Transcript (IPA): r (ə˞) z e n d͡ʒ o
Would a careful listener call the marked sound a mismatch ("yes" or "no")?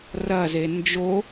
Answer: yes